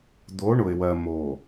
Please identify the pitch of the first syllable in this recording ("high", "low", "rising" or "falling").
rising